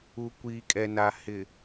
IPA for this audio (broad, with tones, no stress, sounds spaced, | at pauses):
u˨ kʷ iː˨ kʼ ɛ˨ n a˨ h ɪ˨